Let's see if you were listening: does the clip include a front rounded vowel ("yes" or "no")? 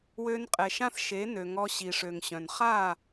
yes